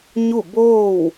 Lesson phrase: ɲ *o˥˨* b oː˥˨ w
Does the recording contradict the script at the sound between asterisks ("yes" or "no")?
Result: yes